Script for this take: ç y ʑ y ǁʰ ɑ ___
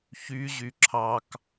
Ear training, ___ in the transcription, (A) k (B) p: A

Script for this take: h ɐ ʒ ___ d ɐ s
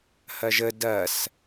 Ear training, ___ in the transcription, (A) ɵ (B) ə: B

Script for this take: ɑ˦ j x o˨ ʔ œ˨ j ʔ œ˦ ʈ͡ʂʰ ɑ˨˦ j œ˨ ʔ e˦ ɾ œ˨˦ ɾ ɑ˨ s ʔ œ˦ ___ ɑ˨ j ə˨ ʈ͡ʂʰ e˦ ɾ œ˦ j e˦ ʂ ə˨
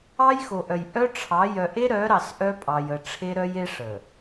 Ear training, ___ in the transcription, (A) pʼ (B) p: A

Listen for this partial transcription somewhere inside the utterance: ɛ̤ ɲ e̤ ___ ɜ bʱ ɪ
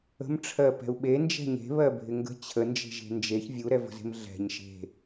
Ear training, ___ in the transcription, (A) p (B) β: B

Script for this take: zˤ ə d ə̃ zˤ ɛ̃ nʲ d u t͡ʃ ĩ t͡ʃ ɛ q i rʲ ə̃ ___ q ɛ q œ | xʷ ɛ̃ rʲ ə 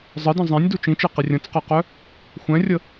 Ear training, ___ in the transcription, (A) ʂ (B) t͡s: B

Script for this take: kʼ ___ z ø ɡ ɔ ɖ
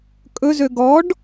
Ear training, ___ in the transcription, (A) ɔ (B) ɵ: B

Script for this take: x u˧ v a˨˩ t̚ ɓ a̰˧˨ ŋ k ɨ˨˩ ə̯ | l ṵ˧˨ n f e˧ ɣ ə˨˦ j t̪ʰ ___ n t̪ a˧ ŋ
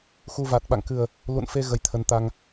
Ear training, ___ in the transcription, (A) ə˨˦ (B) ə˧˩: A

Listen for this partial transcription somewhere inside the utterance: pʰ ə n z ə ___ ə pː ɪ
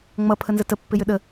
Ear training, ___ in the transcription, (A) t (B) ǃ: A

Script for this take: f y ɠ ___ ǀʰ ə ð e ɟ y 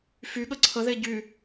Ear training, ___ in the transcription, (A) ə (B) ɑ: A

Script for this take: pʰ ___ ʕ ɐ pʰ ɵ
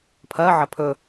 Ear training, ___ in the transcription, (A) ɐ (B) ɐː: B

